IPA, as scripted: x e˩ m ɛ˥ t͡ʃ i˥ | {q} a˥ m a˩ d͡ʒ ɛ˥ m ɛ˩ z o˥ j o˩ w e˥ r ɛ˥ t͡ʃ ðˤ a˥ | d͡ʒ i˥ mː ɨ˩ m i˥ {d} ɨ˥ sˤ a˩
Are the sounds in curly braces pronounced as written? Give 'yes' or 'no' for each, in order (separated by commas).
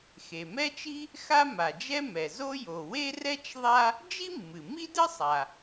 no, yes